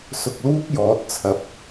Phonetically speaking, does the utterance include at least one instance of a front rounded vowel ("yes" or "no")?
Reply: no